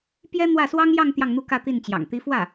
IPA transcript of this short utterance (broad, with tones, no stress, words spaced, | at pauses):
pjɛ˥n̪wä˥˩ swɑ˥ŋjɑ˥˧ŋ t̪jɑ˥˧ŋn̪u˥˧ kä˥˧t̪i˥˩nt͡ɕjɑ̰˨˩ŋ t̪i˧˥fwä˥˩